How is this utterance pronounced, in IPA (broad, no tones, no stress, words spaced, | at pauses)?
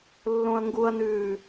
lːõɐ̯ŋɡuɐ̯nʉː